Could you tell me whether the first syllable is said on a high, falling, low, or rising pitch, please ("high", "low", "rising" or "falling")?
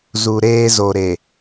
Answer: low